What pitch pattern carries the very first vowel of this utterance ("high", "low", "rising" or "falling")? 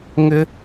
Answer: high